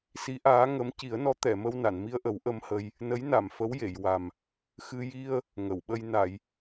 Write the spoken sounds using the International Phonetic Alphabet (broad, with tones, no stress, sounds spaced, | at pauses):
s i˧˥ ʔ aː˧˥ ŋ ə˧˥ m c i˨˩˦ ə̯ n ɔ˧˥ t̪ ɛ˨˩˨ m ə˧ w n a˨˩˨ n m i˧ ə̯ ʔ ə˨˩˦ w ʔ ə˧ m h ə˧ j | n ə˧˥ j n a˨˩˨ m f ə˧˥ w j e˨˩˨ j w a˨˩ m | x ɨ˧ j i˧ ə̯ | ŋ ə˨˩˨ w ɓ ə˧ j n a˨˩˨ j